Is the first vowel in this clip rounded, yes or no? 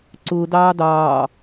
yes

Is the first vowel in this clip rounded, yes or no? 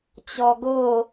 yes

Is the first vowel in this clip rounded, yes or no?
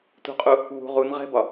yes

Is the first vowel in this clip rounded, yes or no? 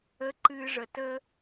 no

